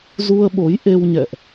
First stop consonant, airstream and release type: implosive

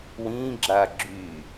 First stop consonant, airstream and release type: click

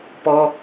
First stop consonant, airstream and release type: plain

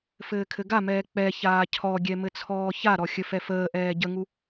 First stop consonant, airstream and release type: aspirated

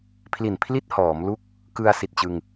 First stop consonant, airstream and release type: aspirated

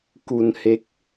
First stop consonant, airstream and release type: plain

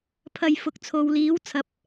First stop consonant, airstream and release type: aspirated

